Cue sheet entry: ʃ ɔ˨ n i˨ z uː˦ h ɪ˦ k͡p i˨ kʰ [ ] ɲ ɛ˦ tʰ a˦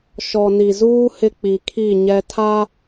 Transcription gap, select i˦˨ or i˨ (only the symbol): i˦˨